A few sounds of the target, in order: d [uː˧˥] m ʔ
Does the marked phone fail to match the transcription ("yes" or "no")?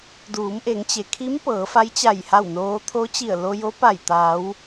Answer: yes